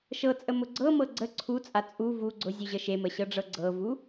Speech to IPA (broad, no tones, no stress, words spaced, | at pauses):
ʃɤt͡sʼəmʊ ɡ͡ǀɤmɤ ɡ͡ǀə ǀʰut͡sʼa t͡sʼu vu ɡ͡ǀʊzʲuʑə ʃeməɕɤɖ͡ʐɤ ɡ͡ǀɤvu